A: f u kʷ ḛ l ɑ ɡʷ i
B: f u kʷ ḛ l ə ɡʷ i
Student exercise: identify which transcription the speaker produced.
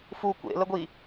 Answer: B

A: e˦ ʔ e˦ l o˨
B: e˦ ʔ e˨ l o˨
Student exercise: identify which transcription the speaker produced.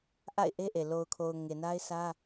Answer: B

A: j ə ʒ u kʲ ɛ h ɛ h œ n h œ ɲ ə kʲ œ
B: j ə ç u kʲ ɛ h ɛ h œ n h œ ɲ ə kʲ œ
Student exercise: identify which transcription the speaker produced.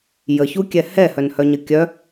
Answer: B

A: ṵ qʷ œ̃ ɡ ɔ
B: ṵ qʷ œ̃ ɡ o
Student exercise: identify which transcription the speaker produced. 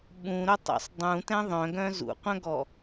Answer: A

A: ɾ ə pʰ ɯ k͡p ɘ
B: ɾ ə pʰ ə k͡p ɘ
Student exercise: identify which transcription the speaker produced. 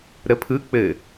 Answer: A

